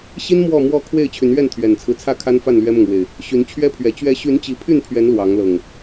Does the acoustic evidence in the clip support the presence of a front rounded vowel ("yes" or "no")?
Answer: yes